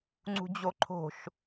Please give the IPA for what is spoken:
ŋ͡ǀ ṳ d͡ʑ o ǃʰ o̤ ʃ

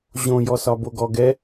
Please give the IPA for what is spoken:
ʑ õ j ɔ s ɒ b o ɡ ɔ ɡ ɛ

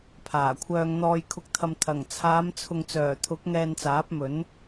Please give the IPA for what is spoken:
pʰ aː˨˩ kʷʰ œː˧ ŋ n̪ ɔː˧ j kʰ ʊ˨ k̚ t̪ʰ ɐ˨ m t̪ʰ ɐ˨˩ ŋ t͡sʰ aː˨˧ m t͡sʰ ʊ˨ ŋ t͡s œː˨˩ t̪ʰ ʊ˨˥ k̚ ŋ ɛː˧ n t͡s aː˨˥ p̚ m ɵ˨˥ n

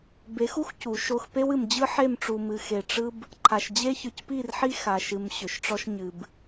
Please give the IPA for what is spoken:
b e˨˦ x u˦ x c u˨˦ ʃ o˦ x p e˦ w ɨ˨ m d͡ʑ ɯ˦ ħ e˦˨ m ʈ͡ʂ u˨ m ɨ˨ x e˨ ʈ͡ʂ ɯ˦ b | ǃʰ a˨ ʃ d͡ʑ e˦ ç ɯ˨ c p i˦˨ r ħ i˦ x a˨ ʃ ɨ˨ m ɕ ʏ˨ ʃ ʈ͡ʂ ɔ˦ ʃ ɲ ɨ˨ b

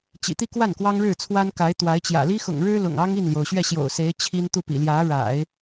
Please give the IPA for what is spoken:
t͡ɕ ḭ˨˩ t̪ i˥˧ k w a˥˩ n k w ɑ˥ ŋ ɻ ɻ̩˥˩ t͡sʰ w a˥ n k a˧˥ ɪ̯ t̪ w a˧˥ ɪ̯ t͡ɕ j ä̰˨˩ l i˥ x ʊ̰˨˩ ŋ ɻ ɻ̩˥ l ʊ̰˨˩ ŋ ɑ˥ ŋ i˥˩ n l j o˩ ʊ̯ ɕ ɥ ɛ˥˩ ɕ j o̰˨˩ ʊ̯ s e˧˥ ɪ̯ t͡ɕʰ i˥ n t̪ u˥˩ p ḭ˨˩ l j ä˧˥ ɻ a̰˨˩˦ ɪ̯

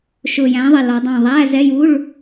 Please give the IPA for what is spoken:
ʃ ʊ˧˩ j æ̃˨˥ ðˤ ɪ˧˩ l ɔ˨˥ dˤ ɑ̃˥˨ ðˤ æ˧˥˧ z ɛ˧˥˧ j u˧˥˧ ɭ

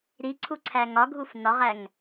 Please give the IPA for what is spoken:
ɾ i ǀʰ u ǀʰ æ ŋ ɒ ɡʱ u f n ɒ ʁ æ ŋ

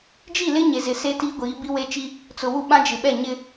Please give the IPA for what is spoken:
d͡ʒ i˦˨ l ɪ˦ ɲ e˨ z ɪ˨ s e˦ t iː˦ ɡʷ iː˨˦ b i˦ w e˦ t͡ʃ i˦ | t͡s ʊ˨ w u˦ ɓ ã˦ d͡ʒ ɪ˨ ɓ ɛ˦˨ ɲ ɪ˦

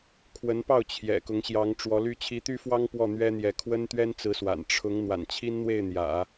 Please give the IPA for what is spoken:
kʰ w ə˧˥ n p ɑ˥˩ ʊ̯ t͡ɕʰ j ɛ̰˨˩ k ʊ˧˥ ŋ ɕ j ɑ˧˥ ŋ ʈ͡ʂ w ɔ˧˥ l y˥ t͡ɕʰ i˧˥ t̪ y˥ f w ɑ˥ ŋ p w ɔ˥˩ n̪ ɥ ɛ˥ n̪ j ɛ˧˥ kʰ w ə˥ n t̪ ɥ ɛ˥ n t͡s ɹ̩˧˥ s w a̰˨˩ n ʈ͡ʂʰ ʊ˧˥ ŋ n̪ w a̰˨˩ n t͡ɕʰ i˥ n n̪ w e˥˩ ɪ̯ n̪ j ä̰˨˩˦

